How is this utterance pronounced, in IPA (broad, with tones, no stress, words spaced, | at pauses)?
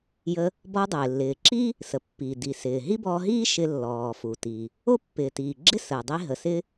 jə˧ | bɔ˧dˤɪː˩ lːɪː˩ǁiː˥ | sə˩pːiː˩ di˩sɪː˩ ɦi˥bɔː˧ɦiː˥ ʃɪ˧lːɔː˩ fu˩tiː˩ | o˥pːɪː˩tiː˩ ɡ͡ǁɪ˥səː˩dˤi˧ ɦə˩sɪː˧